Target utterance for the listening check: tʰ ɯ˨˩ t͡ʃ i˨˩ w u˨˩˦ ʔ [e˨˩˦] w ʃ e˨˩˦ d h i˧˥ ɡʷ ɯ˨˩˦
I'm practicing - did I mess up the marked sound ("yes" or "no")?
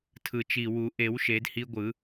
no